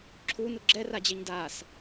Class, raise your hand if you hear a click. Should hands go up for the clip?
yes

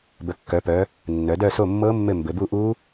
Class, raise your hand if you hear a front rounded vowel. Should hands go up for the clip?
yes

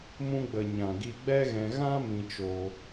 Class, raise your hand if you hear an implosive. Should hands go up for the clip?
no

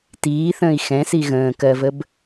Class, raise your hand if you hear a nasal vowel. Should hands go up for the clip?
yes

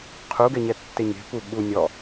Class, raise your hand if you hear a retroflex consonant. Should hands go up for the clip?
no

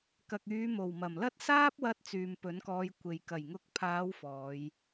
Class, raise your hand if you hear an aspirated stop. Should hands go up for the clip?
yes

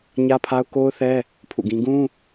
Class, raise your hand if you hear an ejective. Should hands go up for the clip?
no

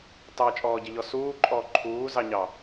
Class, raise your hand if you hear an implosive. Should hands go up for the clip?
no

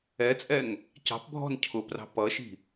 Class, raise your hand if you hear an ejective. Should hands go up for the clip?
yes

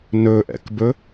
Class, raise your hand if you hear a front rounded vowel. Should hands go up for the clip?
no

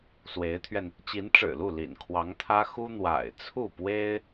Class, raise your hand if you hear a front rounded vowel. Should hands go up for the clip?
no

